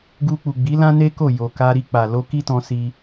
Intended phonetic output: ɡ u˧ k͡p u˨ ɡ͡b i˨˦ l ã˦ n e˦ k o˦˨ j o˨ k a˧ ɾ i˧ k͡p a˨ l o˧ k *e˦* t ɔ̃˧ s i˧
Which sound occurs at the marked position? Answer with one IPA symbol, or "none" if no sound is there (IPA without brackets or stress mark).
i˦